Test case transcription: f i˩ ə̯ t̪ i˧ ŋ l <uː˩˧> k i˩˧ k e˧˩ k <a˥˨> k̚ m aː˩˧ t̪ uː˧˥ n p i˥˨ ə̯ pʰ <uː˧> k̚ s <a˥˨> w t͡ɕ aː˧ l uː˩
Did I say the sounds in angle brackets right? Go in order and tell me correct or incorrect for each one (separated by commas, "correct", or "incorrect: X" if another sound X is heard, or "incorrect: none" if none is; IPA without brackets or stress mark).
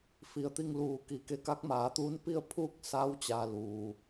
correct, incorrect: a˧˥, incorrect: uː˥˨, incorrect: a˧˥